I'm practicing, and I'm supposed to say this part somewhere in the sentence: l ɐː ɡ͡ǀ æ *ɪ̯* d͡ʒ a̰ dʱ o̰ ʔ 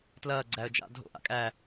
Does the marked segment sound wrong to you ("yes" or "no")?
yes